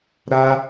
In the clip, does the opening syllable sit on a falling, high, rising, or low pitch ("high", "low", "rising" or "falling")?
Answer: high